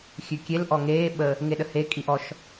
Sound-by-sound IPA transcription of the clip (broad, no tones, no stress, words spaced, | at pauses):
xʲʉkʲel ʔɔŋeː ɓə | ŋeɗəhe kʼiʔɔʃ